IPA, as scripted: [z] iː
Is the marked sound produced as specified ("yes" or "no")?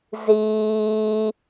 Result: yes